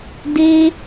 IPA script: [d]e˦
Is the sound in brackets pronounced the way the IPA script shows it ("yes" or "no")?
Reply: yes